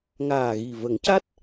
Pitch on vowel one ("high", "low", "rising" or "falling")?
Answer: low